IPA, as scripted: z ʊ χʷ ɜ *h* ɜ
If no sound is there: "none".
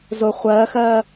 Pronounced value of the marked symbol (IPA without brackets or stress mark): x